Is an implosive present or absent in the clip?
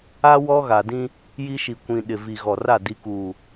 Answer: present